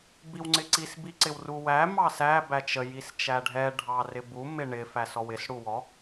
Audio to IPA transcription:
biwŋ͡ǀɪǀis biǀɪwruwæ mɑsæ bæt͡ʃə jist͡ʃæɖʱɛ ɖʱɑrɪbu mɪɳɪ fæsɔwɪs ɽuwɔ

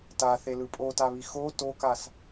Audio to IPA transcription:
taθelɯ pʼotaβi xo tokas

